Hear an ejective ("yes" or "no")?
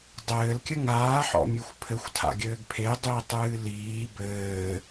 no